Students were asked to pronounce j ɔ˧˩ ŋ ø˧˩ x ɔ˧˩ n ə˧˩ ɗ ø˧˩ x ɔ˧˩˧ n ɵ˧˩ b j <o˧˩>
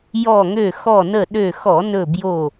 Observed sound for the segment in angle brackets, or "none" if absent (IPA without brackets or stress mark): o˧˩